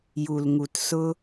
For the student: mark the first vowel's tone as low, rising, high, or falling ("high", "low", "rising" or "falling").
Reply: low